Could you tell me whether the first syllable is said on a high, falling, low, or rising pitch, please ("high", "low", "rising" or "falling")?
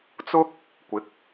high